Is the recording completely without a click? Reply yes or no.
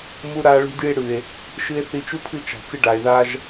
yes